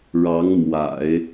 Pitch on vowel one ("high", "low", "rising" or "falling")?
rising